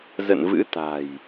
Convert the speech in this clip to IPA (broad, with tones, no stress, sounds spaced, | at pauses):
z ə̰˧˨ n v ɨ̰˧˥ t̪ a̤˨˩ j